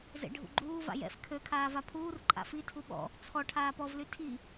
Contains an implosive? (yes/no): yes